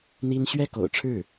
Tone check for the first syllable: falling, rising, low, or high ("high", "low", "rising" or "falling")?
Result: high